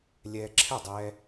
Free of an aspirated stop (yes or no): no